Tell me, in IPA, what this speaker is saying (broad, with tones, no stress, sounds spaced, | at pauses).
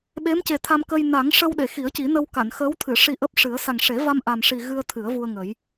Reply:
ɓ e˧˥ m c e˨˩ t̪ʰ a˧ m k ə˧ j n a˨˩˦ ŋ ʂ ə˧ w ɗ e˨˩˨ x i˨˩˦ ə̯ c i˨˩˦ n ə˧ w k a˨˩˨ n x əː˧˥ w t̪ʰ ɨ˨˩˨ ʂ i˧ ʔ əː˦˥ p̚ ʂ ɨ˨˩˦ ə̯ s a˨˩ ŋ ʂ e˨˩˦ v a˧ m ʔ a˨˩ m ʂ i˨˩ ɣ ɨ˧ ə̯ t̪ʰ ɨ˨˩˦ ə̯ v u˧ ə̯ ŋ ə˨˩˦ j